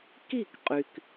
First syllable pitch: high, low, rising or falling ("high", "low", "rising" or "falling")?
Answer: falling